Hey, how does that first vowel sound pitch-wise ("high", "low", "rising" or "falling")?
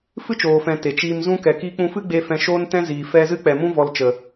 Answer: high